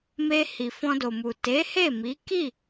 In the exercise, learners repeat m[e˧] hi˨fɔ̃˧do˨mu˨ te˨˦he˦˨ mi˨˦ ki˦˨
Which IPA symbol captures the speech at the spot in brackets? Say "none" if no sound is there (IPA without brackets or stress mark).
e˧